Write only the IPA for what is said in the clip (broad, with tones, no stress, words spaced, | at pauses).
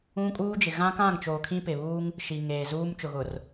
ũ˦kʼuː˦d͡ʒɪ˨ ɣã˦kã˦˨ŋt͡ʃoː˨ kʰĩ˦pɪ˨ βuː˦ŋ | ʃi˨ŋeː˨zuː˦m t͡ʃʊ˨ɣʊ˨r